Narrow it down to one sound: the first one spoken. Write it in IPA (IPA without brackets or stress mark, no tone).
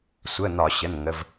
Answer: sʷ